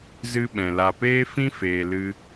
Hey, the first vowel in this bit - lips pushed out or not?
no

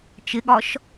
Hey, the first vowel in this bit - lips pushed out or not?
no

